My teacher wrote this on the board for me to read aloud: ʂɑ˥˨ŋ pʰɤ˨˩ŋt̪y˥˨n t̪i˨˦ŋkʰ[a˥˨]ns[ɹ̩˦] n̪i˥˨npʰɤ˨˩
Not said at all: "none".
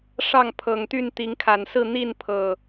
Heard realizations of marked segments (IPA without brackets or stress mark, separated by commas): a˨˩, ɹ̩˥˨